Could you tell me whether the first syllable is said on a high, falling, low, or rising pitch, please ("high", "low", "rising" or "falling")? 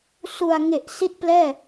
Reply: low